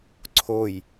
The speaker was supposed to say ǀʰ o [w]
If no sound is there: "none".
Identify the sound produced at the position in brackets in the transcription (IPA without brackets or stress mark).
j